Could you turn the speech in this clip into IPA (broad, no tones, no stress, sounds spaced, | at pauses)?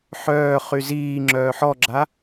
ħ œː χ y z iː ŋ͡ǁ œː ħ ɔ ɡ͡ǁ a